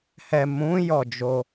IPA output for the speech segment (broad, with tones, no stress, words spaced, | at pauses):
hɛ˨mũ˨˦ jɔ˦˨d͡ʒo˧